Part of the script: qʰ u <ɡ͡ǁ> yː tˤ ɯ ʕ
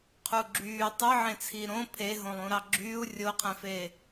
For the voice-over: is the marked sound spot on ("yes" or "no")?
yes